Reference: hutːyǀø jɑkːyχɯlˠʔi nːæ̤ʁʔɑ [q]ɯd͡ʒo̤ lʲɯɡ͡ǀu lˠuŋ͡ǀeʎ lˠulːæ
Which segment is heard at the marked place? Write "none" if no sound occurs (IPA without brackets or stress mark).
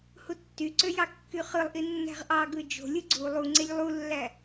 ɡ